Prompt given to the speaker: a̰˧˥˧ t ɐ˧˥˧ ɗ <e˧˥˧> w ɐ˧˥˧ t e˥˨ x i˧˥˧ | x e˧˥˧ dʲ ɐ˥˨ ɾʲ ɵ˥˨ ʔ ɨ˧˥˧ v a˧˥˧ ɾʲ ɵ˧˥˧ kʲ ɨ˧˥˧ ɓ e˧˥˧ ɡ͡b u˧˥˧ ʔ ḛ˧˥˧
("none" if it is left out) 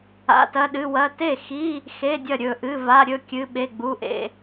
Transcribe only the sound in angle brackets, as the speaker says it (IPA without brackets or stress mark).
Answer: ɨ˧˥˧